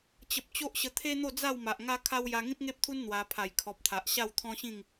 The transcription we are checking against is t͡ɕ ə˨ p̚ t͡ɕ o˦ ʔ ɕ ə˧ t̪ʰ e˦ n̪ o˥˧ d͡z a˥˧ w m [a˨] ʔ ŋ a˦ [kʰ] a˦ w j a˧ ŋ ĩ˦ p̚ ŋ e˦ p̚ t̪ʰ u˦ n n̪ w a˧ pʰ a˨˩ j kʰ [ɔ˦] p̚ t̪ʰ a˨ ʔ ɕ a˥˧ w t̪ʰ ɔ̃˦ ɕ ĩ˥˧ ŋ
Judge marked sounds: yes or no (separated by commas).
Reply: yes, yes, no